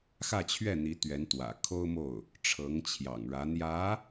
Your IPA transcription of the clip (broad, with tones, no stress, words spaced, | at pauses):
xä˥˧t͡ɕʰɥɛ˥˩n̪i˧˥ t̪ɥɛ˧˥nt̪wä̰˨˩ kʰo˥ʊ̯mo˥˩ʊ̯ | ʈ͡ʂʰɤ˧˥ŋt͡ɕʰjɑ̰˨˩ŋɻä˧˥ n̪jä˧˥